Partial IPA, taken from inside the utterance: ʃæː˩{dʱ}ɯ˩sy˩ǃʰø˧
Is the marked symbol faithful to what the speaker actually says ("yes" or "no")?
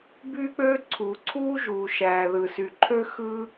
no